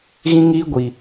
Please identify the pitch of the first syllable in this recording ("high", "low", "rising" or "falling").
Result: high